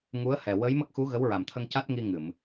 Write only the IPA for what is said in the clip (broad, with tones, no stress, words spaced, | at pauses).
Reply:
ŋu˧˥ə̯hɛ˨˩ wə˧˥jmə˦˥k̚xu˧˥ ɣə˧˥wɹa˨˩mt̪ʰə˧ŋ ca˦˥t̚ŋi˧ ŋɨ˨˩˨m